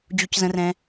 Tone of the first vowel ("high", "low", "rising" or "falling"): high